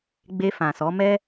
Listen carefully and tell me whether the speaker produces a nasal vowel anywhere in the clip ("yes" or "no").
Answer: yes